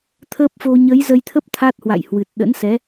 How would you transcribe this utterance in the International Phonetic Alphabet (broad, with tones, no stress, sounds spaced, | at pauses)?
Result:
t̪ʰ əː˦˥ p̚ f o˧ ɲ ə˨˦ j z ə˧ j t̪ʰ ə˦˥ p̚ t̪ʰ a˦˥ t̚ h w a̰˧˨ j h w ɨ˨˩ t̚ ɗ ə̰˧˥ n s ɛ˨˦